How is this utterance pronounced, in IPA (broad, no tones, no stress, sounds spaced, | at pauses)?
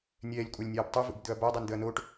nʲ ɛː lʲ kʷʼ a lʲ nʲ aː b tˤ e v ṵ b d̪ ɵ ɐ̯ b a dˤ ɛ n d̪ ɵ ɐ̯ n oː ʈ